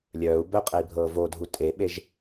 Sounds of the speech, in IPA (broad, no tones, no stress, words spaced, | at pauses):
lʲœːu̯ bœqʼɛi̯bʱɤː vodʱu tʼeɓeʒ